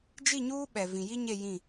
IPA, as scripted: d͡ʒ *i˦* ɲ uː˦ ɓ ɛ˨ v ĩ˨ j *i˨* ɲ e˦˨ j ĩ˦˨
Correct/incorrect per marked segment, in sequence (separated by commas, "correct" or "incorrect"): incorrect, incorrect